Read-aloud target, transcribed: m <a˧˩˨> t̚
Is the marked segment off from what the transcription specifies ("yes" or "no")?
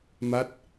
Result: yes